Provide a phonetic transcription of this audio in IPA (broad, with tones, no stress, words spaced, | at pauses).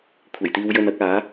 kʷʰe˨˩jt̪iː˧wjɵ˧n ɐ˨˥k̚aː˨˥